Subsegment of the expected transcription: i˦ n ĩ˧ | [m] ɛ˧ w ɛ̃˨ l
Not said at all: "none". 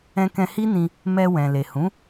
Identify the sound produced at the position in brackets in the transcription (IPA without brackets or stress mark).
m